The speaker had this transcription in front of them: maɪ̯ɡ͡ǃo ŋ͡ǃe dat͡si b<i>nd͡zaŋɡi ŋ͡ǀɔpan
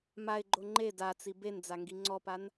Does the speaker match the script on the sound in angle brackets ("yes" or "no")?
no